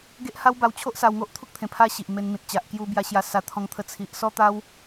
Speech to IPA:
ɡ e˦ ʔ h a˦ w b a˧ w t͡ɕʰ o˦ ʔ s a˧ w ŋ o˦ ʔ t̪ʰ u˦ k̚ t̪ʰ ẽ˨˩ pʰ a˧ ɕ i˨ ʔ m e˧ n m ĩ˨ t̚ t͡ɕ a˨ ʔ k j u˧ b j a˧ ɕ j a˧ s a˧ t̪ʰ ɔ̃˧ ŋ t̪ʰ ə˧ t͡sʰ i˨ ʔ s ɔ˦ t̪ a˦ w

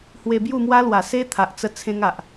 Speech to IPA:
h w e˧ b j u˥˧ m w a˦ l w a˨˩ s e˦ t̪ʰ a˨ ʔ t͡s ə˦ t͡sʰ ẽ˦ ŋ a˨ ʔ

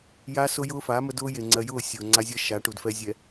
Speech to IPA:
j a˦ s ʊ˦ j ʊː˦ f a˨˦ m ə˦ d ʊː˦ j e˨ ŋ͡ǀ ɜ˨ j ʊː˦˨ sʲ ʊː˨ ŋ͡ǀ a˦ zʲ ɜ˦ ʃ a˨˦ ʈ u˨ d f ɛ˦ zʲ ɛ˨

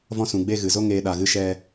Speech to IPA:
v ɔ̃˧ s ũ˨ ɡ͡b e˧ ɣ ɨ˨ z o˦ ŋ eː˦ ɗ a˧ ɣ ɨ˦ ʃ ɛ˧

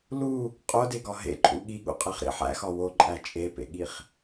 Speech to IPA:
l u | qʼ o d e ɡ ɒ ɦ ḛ ǃʼ ṵ ɠ i ɠ ṵ qʼ e χ ɾ ḭ ħ æ̰ x ɒ w o ǃʼ æ t͡ʃʼ e p ḛ ɠ i χ

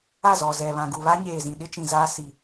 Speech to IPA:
a˦˨ z ɔ˨ z ɛ˨ β ã˨ ɡ u˨ β a˦ ɲ eː˨ z ĩ˨ ɗ ɪ˦ t͡ʃ ĩ˨ z aː˦ s i˨

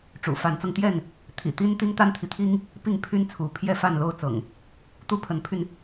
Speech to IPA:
ʈ͡ʂ ṵ˨˩ f a˨˦ n t͡s ɤ˧ ŋ t̪ j ɛ˥˨ n | t̪ʰ ḭ˨˩ t̪ i˦ n t̪ i˦ ŋ t̪ a˦ n t̪ʰ i˨ t̪ʰ i˦ ŋ | p i˥˨ ŋ pʰ y˦ n t͡sʰ u˨˦ pʰ j ɛ˥˨ f a˥˨ n l o˥˨ ʊ̯ t͡s ɤ̰˨˩ ŋ | t̪ u˦ pʰ ə˨˦ n pʰ y˧ n

